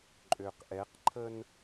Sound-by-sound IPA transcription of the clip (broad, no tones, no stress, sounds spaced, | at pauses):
ǃʼ ø q ʔ ɛ q ǃʰ ə n